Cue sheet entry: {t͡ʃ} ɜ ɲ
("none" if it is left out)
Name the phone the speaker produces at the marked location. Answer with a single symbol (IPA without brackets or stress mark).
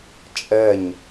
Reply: t͡ʃʼ